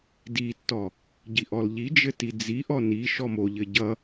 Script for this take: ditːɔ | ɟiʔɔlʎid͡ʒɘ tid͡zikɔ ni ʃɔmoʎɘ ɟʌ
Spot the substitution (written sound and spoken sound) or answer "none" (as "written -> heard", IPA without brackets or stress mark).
k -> ʔ